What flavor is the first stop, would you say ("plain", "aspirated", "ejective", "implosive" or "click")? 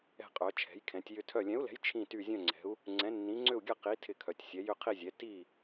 ejective